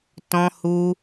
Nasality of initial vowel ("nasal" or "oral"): nasal